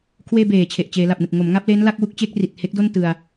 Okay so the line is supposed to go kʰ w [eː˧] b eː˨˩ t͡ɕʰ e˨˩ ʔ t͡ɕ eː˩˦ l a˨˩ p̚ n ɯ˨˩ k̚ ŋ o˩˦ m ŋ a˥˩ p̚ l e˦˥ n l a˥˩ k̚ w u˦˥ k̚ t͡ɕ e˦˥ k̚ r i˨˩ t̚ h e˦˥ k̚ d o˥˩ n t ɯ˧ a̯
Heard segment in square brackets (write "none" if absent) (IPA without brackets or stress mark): eː˧